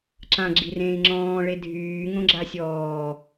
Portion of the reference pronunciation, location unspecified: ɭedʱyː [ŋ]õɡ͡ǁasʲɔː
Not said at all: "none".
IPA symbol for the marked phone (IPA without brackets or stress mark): ŋ